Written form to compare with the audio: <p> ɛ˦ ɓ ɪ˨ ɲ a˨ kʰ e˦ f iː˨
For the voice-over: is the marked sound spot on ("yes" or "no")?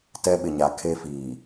no